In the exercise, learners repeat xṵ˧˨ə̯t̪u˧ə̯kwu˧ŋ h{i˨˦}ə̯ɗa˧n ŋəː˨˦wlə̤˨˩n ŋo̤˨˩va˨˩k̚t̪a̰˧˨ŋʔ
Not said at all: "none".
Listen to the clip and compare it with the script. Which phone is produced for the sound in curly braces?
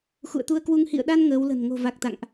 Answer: ḭ˧˨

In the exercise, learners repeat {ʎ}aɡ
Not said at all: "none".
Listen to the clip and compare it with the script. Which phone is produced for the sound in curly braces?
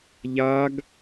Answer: ʎ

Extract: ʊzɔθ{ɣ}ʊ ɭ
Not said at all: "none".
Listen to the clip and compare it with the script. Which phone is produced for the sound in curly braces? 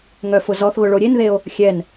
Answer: ɣ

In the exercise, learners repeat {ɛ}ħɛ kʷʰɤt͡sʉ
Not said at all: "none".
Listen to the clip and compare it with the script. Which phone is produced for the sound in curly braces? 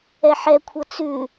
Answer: ɛ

